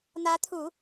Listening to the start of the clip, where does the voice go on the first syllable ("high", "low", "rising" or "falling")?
rising